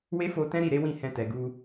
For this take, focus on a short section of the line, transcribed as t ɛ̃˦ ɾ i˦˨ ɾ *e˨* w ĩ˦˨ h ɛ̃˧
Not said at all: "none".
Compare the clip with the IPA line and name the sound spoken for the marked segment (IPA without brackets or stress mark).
e˨˦